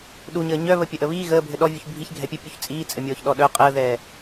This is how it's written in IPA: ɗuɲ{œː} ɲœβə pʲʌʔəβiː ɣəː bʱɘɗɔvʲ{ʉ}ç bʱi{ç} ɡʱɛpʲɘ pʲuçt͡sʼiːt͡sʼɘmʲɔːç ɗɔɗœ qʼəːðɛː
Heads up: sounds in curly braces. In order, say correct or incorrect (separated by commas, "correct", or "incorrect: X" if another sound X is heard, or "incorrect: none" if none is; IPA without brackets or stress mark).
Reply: incorrect: əː, incorrect: u, correct